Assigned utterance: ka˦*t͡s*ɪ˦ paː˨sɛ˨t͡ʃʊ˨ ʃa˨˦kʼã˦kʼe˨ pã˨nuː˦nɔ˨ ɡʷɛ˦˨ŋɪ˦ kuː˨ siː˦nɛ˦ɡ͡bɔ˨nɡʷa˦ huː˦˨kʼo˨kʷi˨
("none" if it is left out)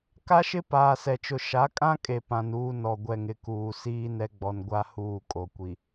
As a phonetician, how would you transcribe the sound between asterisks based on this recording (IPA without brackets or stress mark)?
ʃ